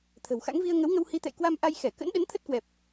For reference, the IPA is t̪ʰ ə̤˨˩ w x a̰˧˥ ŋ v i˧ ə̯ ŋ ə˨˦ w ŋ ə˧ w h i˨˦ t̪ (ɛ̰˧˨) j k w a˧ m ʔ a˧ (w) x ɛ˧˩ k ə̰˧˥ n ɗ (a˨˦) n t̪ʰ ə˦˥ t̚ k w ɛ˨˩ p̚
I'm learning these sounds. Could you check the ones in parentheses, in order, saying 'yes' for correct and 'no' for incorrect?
yes, no, no

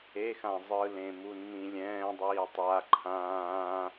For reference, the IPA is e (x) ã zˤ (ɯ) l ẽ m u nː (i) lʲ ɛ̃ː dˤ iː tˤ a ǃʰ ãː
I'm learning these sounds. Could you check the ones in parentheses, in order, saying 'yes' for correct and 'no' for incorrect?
yes, yes, no

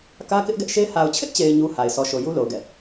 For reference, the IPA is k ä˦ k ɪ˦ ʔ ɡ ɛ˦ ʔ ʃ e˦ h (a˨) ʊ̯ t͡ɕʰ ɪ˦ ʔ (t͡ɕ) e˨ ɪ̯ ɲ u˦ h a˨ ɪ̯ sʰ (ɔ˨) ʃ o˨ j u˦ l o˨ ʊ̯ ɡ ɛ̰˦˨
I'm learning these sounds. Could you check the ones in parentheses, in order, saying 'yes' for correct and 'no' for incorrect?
yes, yes, yes

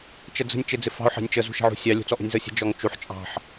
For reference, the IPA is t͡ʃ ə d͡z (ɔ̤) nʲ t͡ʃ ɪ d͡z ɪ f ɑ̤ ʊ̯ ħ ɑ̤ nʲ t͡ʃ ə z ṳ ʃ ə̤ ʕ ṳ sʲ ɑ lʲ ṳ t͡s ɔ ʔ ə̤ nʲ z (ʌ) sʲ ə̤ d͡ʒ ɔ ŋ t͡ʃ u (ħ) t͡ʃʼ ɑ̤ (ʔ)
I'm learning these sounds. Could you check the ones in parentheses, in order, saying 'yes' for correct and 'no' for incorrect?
no, yes, yes, no

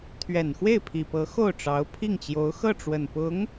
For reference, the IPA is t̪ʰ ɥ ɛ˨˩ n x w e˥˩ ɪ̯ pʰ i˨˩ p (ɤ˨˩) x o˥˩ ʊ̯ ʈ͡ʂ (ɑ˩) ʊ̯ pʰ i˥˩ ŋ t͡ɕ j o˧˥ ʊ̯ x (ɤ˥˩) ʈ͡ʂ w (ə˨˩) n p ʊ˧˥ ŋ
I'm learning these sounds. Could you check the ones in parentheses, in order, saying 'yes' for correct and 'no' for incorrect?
no, no, yes, yes

